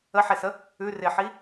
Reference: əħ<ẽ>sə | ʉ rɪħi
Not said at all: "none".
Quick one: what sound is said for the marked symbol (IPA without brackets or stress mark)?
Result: e